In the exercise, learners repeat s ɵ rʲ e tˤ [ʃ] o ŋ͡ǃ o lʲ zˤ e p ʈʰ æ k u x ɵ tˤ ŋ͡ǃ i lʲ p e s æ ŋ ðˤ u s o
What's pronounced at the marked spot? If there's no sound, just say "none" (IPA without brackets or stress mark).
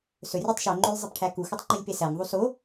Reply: ʃ